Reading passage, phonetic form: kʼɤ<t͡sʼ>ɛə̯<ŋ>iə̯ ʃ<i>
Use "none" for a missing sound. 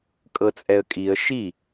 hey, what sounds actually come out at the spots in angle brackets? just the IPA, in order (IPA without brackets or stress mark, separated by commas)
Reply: t͡sʼ, kʼ, i